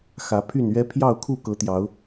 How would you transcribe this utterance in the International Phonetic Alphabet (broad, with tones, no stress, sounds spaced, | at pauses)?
x ä˨˦ pʰ y˥˨ n ɥ ɛ˦ pʰ j ɑ˥˨ ʊ̯ kʰ u˥˨ k ɤ˨˦ t̪ j ɑ˨˦ ʊ̯